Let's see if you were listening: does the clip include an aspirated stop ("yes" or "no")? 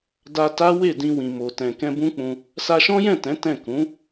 no